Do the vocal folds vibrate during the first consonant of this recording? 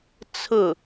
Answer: no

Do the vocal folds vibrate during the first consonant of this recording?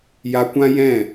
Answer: yes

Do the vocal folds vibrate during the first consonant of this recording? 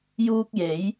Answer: yes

